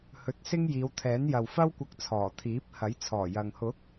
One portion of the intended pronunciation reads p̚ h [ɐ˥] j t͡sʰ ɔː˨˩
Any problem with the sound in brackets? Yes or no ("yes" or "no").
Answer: yes